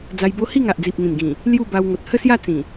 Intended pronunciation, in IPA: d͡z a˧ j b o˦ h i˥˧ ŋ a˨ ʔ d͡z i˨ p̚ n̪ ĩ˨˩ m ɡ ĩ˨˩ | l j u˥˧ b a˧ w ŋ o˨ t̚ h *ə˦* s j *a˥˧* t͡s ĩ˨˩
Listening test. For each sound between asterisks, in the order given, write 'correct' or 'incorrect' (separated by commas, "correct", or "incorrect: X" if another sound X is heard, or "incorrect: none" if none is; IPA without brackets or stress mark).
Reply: incorrect: ə˥˧, correct